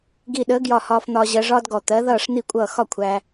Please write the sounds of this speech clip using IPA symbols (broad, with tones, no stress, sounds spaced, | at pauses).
ɡ i˧˩ ɗ əː˨˥ ɡ j ɒ˧˩ h ɒː˧ f n̪ ɒː˧ ʑ ɜ˧ ʐ ɒː˥ d ɡ ɔ˧˩ t̪ ɜ˨˥ ð ʌː˥˨ ʂ n̪ i˥˨ kʷʼ ʌː˥˨ x ɒ˥˨ kʷʰ æ˧